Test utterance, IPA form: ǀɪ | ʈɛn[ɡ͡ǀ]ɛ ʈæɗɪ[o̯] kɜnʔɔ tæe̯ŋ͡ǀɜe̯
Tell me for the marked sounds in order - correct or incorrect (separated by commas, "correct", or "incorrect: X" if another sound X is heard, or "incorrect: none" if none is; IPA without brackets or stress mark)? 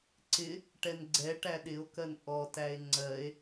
correct, correct